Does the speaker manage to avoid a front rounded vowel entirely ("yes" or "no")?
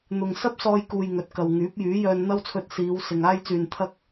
no